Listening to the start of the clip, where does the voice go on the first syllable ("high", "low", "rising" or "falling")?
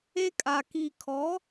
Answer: high